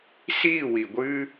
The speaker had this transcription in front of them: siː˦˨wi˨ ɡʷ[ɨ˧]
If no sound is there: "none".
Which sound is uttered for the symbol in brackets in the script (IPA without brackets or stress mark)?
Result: ɨ˧